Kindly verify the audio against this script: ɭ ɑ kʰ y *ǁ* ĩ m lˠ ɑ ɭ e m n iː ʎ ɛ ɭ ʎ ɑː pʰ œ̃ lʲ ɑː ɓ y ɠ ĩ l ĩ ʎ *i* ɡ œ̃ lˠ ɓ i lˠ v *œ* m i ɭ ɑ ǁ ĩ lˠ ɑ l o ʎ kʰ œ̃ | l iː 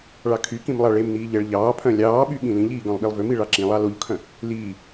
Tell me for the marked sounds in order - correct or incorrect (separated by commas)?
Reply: incorrect, incorrect, incorrect